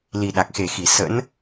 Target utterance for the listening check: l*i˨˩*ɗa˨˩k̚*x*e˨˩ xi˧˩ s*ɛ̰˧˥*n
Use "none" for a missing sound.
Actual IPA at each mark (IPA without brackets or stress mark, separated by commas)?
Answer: i˨˩, x, ə̰˧˥